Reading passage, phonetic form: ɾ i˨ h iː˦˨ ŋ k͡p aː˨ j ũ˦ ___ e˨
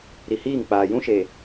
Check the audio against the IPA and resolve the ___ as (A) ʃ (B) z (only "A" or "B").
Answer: A